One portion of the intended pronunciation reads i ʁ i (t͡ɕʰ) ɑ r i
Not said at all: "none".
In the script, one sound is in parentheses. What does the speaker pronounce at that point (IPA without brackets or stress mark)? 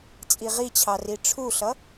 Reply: t͡ɕʰ